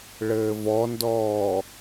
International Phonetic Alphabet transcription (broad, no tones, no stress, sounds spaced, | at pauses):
ɭ ɘː v ɔ n d ɔː